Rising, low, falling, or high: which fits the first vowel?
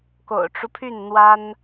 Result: low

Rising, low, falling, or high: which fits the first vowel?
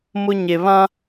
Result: high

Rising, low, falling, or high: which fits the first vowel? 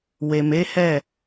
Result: low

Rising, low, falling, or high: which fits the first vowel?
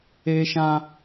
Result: high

